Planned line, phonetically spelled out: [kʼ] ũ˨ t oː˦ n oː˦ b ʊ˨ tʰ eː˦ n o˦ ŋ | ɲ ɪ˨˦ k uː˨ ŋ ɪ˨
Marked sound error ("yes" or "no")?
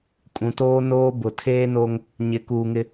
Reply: no